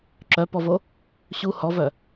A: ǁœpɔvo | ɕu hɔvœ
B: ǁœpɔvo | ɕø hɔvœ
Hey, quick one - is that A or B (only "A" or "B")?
A